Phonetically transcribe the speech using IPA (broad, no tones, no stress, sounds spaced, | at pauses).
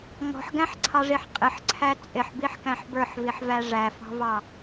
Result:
ŋ ɔ̤ ħ ɡ æ̃ ħ ǀʰ ɑ ʐ i ħ qʼ ɪ ħ ǀʰ æ t͡sʼ ɪ ħ b i ħ k æ̃ ħ b ə˞ ħ v i ħ v æ ʐ æ f ɑ̤ v ɑ